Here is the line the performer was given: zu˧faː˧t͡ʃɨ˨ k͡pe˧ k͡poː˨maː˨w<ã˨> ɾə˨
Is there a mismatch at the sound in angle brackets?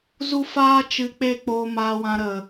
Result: no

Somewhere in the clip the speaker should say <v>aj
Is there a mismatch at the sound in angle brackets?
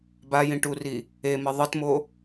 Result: yes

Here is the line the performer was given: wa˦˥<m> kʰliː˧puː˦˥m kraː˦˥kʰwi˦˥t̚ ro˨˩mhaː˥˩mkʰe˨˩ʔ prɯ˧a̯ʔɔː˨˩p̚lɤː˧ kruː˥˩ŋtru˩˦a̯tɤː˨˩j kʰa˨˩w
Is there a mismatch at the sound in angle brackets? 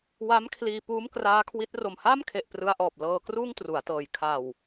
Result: no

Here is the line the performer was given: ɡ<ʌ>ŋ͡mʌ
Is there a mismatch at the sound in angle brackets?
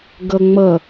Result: no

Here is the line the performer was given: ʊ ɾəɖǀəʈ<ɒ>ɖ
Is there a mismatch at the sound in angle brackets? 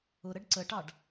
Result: yes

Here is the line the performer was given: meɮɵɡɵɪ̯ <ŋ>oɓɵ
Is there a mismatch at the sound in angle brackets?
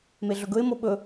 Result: yes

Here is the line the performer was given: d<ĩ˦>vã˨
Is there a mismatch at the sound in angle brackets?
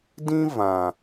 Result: no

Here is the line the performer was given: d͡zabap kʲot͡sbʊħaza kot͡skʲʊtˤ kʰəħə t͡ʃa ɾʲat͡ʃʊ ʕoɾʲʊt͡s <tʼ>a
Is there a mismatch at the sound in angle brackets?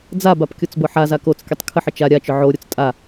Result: no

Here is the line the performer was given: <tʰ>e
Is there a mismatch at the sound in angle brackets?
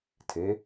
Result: no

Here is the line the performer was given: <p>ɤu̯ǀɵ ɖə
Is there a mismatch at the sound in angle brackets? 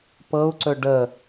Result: no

